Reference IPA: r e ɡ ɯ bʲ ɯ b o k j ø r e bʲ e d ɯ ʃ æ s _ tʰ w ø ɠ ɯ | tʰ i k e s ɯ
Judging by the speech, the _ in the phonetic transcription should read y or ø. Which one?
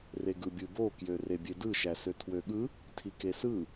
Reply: ø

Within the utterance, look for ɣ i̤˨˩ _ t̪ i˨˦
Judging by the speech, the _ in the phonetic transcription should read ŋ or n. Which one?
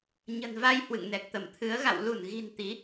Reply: n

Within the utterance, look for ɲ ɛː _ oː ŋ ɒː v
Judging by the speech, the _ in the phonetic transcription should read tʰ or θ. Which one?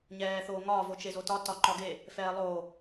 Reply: θ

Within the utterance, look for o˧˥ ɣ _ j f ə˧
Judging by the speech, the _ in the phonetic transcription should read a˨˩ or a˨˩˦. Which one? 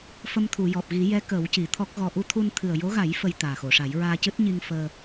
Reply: a˨˩˦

